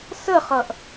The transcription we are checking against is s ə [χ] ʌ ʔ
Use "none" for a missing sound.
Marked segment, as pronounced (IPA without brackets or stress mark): χ